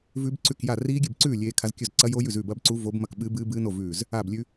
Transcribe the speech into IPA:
v ʉ˦˥ b ǀ ʉ˥˨ k j a˥˨ r iː˦˥ ɡʲ ɨ˥˨ b ǀ ʉː˥˨ lʲ eː˦˥ kʰ a˦˥ z kʲ ɵ˥˨ z ǀ ɐ˦˥ j o˦˥ j ʉ˥˨ z ʉː˥˨ b ɐ˦˥ b ǀ u˦˥ v o˦˥ b m ɐ˥˨ k ɓ ɨː˦˥ b ɨː˦˥ b ɨː˦˥ n o˥˨ v ʉː˥˨ z | aː˥˨ b lʲ ʉ˦˥

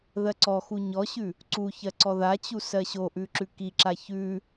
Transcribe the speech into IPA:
ð ɜ ǀ ɔ x u ɲ ɔ ɕ ʉ | ǀ u ç ɜ ǀ ɔ ð a t͡ɕ u s ɜ ɕ o ʔ ʉ ǁ ʉ k i ǁ a ç ʉ

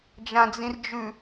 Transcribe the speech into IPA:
d͡ʒ ã d͡z ĩ r d͡ʒ ʉ

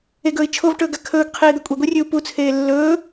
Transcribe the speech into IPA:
e ɡ ɵː i̯ t͡ʃʰ o v ʈ ɵː ɡ a kʰ ɵː ɡ qʰ eː d̪ ɐ kʷʼ e ɡʷ i rʲ ʉ u̯ p u t͡sʰ eː lː ɵː

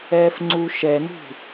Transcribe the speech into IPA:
ɛː f ŋ͡ǀ u ʃ ɛ n ṳ

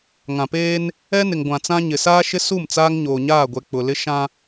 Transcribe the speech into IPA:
ŋ ã˨ p eː˦ n | ɛ˦ n ɪ˨ ŋ ɡʷ ã˨ t͡s ã˦ ɲ ɪ˨ s aː˦ ʃ ɪ˦ s u˦˨ m t͡s aː˦ ŋ ɲ oː˨ ɲ aː˦˨ ɡʷ ɛ˨ k͡p ʊ˨ l ɪ˦ ʃ ã˦

